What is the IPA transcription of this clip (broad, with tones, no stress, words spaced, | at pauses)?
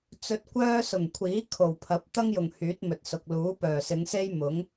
t͡sɵ˧t̚kʷœː˥ sʊ˨˩ŋkʷʰiː˨˥ kʰo˨˩wpʰɐ˨˥p̚ t̪ɐ˥ŋjʊ˨˩ŋ hyː˨˥t̚mɵ˨t̚sʊ˨k̚ luː˨˥pœː˨˩sɪ˨˧ŋse˥j mʊ˨˥ŋ